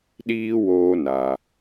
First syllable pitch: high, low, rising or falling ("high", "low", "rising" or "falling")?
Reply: high